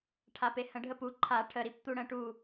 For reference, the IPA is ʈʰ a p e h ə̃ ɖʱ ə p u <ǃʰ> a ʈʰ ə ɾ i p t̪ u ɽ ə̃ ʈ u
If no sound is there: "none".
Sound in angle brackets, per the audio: ǃʰ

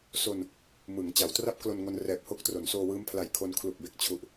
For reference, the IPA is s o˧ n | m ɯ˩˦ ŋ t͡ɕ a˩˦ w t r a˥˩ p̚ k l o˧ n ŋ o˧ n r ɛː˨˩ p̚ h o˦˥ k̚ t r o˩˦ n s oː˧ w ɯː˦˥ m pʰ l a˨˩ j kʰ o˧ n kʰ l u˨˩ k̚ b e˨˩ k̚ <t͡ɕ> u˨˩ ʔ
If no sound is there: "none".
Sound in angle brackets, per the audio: t͡ɕʰ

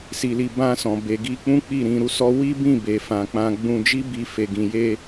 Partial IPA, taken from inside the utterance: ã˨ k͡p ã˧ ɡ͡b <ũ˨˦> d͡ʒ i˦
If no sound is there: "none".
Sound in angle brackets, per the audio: ũ˧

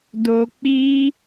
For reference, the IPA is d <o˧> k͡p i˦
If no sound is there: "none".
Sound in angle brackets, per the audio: o˧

